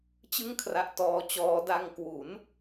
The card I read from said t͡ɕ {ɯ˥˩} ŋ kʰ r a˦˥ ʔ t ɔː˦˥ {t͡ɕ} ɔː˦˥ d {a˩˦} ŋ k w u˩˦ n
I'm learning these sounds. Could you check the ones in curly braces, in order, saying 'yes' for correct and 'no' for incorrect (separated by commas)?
yes, yes, no